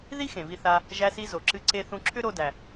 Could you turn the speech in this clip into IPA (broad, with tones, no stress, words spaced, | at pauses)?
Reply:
ði˥ xẽ˩vi˧θa˧ | ʒæ˧si˧zo˩ ǁɨ˧ ǀe˧ θũ˧ ǁʰʏ˥ɾo˧dæ˩